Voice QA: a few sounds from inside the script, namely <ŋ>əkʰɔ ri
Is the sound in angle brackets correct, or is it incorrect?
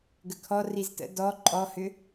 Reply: incorrect